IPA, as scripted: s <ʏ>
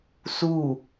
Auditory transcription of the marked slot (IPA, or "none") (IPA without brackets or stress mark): u